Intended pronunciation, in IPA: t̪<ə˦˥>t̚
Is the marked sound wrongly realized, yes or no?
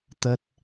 no